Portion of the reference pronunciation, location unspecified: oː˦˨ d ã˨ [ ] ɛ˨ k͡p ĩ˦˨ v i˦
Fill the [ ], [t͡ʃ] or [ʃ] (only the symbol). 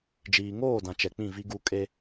t͡ʃ